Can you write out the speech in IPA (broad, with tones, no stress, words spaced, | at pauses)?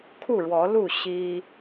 kʰu˥˨ɻwɔ˨˦lu˥˨ ɕi˦